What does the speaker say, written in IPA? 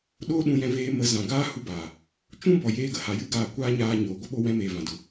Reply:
ɗ oː˧ ɗ ũ˧ j ɛ̃˧ v eː˧ m ə˨˦ z ã˨ ɡ aː˦ h u˧ b aː˨ | t͡ʃ ũ˦ b ɔ˨ j eː˧ ɡ ə˦ h a˨ j ɨ˦ ɡ aː˧ kʷ aː˦ ɲ aː˧ ɲ oː˨ ɡʷ ə˦ ɓ o˧ w ɛ̃˧ m eː˨ v ã˨ d u˨

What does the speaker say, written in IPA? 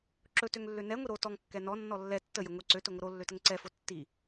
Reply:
ǁ ɵ t ø ŋ lː ø n ɛ ŋʷ i ɾ o t ɔ ŋ kː ɛ n ɔ nː ɔ lː ɛ tː ə j ə ŋʷ i ǀ ø t ɵ ŋʷ ə ɾ o lː ø t ə ŋ ǀ ɛ f o tː i

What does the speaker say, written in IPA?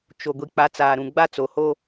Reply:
t͡ʃ o˨ ɡʷ i˨ k͡p a˨˦ t͡s aː˨ ɾ ũ˨ ɡ͡b a˦ t͡s o˨ h o˦

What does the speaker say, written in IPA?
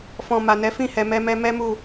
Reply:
f ɔ̃˨ m a˨ n ɛ˨˦ f ĩ˦˨ h ɛ˨ m ɛ˧ m ɛ˧ m ɛ˦ m u˦˨

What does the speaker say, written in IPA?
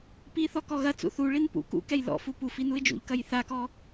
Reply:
p i θ ɔ k ɔ ɣ ɐ t͡s ṵ θ u ɭ i n p ṵ k ṵ k ɛ j l ɔ̰ f u p u f i n u ɪ̯ d͡ʒ ṵ ʎ k ɐ j θ a k ɔ

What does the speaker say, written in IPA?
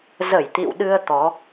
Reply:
z ə˧˩ j t̪ ḭ˧˨ w ɗ ɨ˧ ə̯ t̪ ɔ˨˦

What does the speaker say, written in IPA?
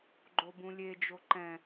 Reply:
ɡ͡ǃ o b ũ lʲ e d͡ʒ o ǃ ɛ̃

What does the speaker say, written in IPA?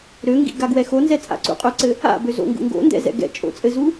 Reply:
ɾ ø ŋ ɡ ḭ ɡ a ɡ w ɛ x o n z ɛ t͡sʼ a̰ ǀ ṵ qʼ ø ǀ ɘ | a̰ b ø z o̰ ŋ ɡ ṵ ŋ ɡ o̰ n d ɛ̰ z ɛ̰ ɡ ɛ̰ t͡ʃʼ o̰ t͡sʼ ɘ z u

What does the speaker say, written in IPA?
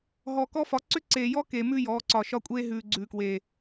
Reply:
ɦ ɔ˨ k ɔ˦ f ɒ˨˦ ǀ ʏ˦ ǀ eː˨ j ɔ˦ k e˨ m ʉ˦ j ɔː˨˦ ǀ ɒ˨ ʃ ɒ˦ kʷʼ eː˦ ɦ ʉː˨ ɡ͡ǀ ʉː˨ k w eː˨

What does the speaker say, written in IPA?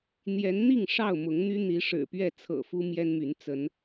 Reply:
n̪ j ɛ˨˦ n n̪ i˥˨ ŋ ʂ ɑ˥˨ ʊ̯ m ʊ˨˦ ŋ n̪ y˦ n̪ i˨˦ ʂ ɻ̩˨˩ p ɥ ɛ˥˨ t͡sʰ ɤ̰˨˩ f u˦ m j ɛ˦ n m y˨˦ n t͡s ə˨˦ n

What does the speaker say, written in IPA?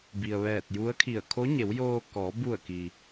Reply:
b i˩ ə̯ ʋ ɛː˧˩ t̚ j u˧˥ ə̯ kʰ i˧˩ ə̯ kʰ o˧˥ ɲ e˩˧ w j oː˧ k ɔː˩˧ b u˧˩ ə̯ k i˩

